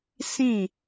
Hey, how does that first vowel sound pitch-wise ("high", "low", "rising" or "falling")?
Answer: falling